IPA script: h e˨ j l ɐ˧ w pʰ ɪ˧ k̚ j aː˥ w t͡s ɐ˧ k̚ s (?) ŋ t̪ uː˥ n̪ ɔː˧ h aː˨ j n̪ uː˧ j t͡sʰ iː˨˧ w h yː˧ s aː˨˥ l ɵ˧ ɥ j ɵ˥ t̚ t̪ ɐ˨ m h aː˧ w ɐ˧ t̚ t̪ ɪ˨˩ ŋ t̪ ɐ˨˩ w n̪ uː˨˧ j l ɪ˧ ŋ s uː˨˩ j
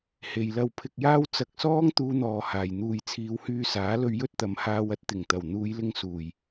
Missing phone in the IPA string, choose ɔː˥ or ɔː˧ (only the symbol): ɔː˥